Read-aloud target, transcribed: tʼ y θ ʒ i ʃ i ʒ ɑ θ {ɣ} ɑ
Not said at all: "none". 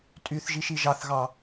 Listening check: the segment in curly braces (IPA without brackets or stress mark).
ɣ